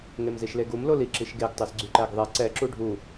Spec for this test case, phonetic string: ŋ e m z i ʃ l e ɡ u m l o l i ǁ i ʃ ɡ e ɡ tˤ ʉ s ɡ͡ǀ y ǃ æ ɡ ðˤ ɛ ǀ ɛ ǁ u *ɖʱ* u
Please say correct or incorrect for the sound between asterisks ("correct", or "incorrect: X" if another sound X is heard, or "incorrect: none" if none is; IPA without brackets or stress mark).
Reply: correct